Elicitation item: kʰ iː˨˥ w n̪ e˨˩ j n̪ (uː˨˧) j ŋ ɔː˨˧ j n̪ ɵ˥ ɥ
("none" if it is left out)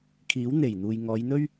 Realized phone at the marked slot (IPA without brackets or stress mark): uː˨